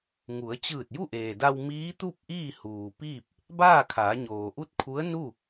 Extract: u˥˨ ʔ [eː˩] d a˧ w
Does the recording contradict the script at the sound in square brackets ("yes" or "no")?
no